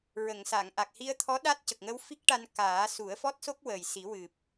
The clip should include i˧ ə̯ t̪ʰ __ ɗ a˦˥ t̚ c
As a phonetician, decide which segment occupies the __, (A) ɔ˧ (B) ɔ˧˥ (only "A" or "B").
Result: B